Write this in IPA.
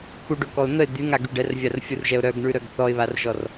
kuɖokɔʊ̯ n̪əɪ̯ d̪yŋaɡy ɖɛrvʲarfʲurʒɛʊ̯ ɾœɡɳʉɾœɡ θɔɪ̯βarʒɔr

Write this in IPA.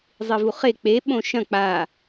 zˤivuχe k͡peɓõ ʃɐ̃ k͡pa

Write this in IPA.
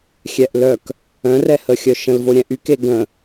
xʲɛʔlœk | œ̃rɛhəxʲœ ʃə̃lvo ɾʲɛ̃ʔyke ɡə̃

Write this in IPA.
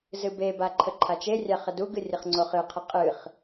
zɨbeba ǃʰəǃʰat͡ʃerʲa χəduɡɨ rʲəχŋ͡ǀoχɨqʰə qʼɨχ

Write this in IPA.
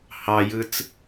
hɑjɯt͡s

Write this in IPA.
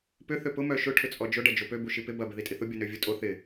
pʏ θøpʊ mœʃʊ ʈʰʏt͡sʼɔd͡ʒʊ ɖɐd͡ʒopø buʃipɪ bɐ bɪðitʼiθʊ bʲonøvʲutʼo θɪ

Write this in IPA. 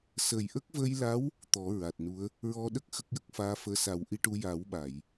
sə˨˩jʔə˦˥k̚ və˧jla˧˥w | t̪ɔ˨˩˦ɹa˨˩t̚nu˧˥ə̯ | ɹɔ˧ɗə˦˥k̚ xə˦˥k̚jə˦˥k̚ faː˧˥fəː˧ sa˨˩˦wʔi˧ʈu˧ ja˨˩˦wɓa˨˩˨j

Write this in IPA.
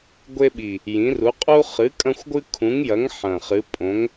ɡʷe˦ɓi˨˩ | jĩ˨˥ru˨˥ qʼu˦χɨ˨˥kʼɐ̃˦xʷɡʷɨ˦ kʰũ˨˥ŋjɐ˨˥ŋ ħɐ̃˨˩χɨ˨˥ pʼõ˨˥ŋ

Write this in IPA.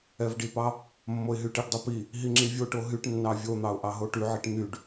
ɛvɖipɑ | mːoɪ̯ɦyʈiɖdˤo pi | ɦiŋ͡ǁivʲoʈo ɦyʈnːɑ vʲon̪ɑʊ̯ ʔɑɦoʈyʕiʈ n̪yɖ

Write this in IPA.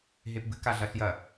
ɦepbɨ kaɮɐɬjɐ

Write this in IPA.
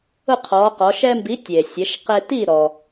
ʊ˥˨qʰɔː˩˧qɔ˩˧ ʃɛ˦mbi˨˥ tʲeː˩sʲɛ˩˧ʃ qe˦ ti˥˨ɾɔ˩

